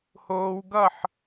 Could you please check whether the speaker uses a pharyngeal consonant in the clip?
yes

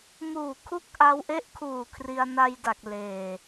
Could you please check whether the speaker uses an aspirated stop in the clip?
yes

